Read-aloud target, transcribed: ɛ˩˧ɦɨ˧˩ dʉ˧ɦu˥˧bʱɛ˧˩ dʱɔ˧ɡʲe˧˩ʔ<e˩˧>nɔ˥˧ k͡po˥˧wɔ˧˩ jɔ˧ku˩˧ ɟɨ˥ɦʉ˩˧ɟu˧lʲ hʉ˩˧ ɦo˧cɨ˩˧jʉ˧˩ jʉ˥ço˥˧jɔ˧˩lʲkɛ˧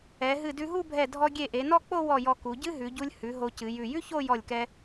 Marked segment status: correct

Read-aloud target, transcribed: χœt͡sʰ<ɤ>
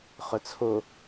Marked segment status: incorrect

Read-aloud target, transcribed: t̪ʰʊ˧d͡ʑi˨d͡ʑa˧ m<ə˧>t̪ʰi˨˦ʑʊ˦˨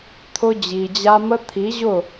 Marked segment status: correct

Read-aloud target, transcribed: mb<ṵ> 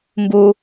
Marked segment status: incorrect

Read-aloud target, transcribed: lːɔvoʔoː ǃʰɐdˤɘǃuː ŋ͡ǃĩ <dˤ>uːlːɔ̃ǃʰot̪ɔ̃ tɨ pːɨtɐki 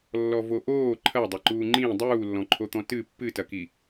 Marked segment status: correct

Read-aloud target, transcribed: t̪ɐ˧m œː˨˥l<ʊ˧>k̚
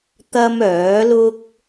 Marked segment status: incorrect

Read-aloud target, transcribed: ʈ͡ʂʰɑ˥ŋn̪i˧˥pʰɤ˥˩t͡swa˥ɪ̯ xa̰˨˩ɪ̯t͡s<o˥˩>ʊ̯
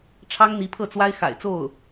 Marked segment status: correct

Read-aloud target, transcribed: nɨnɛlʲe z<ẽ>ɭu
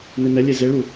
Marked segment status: incorrect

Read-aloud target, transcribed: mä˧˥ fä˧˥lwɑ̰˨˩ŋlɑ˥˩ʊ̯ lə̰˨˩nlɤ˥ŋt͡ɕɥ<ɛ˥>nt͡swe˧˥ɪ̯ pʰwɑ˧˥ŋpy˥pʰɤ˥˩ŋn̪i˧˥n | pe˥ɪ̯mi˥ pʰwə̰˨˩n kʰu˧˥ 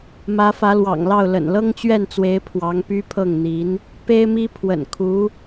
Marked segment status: incorrect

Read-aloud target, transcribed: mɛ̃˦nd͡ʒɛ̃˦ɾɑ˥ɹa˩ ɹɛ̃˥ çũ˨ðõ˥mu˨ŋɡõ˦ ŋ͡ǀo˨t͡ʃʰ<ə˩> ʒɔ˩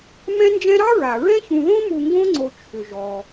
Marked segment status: incorrect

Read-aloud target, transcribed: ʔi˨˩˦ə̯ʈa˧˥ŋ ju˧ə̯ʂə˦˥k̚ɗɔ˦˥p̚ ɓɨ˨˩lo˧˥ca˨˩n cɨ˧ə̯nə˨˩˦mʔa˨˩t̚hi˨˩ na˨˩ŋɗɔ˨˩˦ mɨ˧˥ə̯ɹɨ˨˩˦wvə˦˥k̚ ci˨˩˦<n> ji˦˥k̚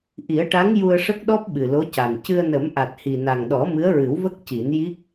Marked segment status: correct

